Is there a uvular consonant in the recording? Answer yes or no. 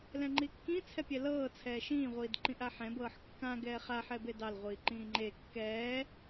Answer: yes